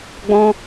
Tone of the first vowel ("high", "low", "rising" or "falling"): high